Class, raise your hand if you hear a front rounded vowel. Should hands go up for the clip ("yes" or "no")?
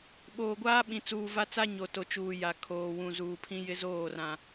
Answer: no